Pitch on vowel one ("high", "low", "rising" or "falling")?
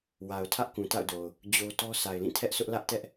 low